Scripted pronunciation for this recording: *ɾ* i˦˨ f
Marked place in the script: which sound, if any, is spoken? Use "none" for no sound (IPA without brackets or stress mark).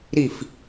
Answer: ɾ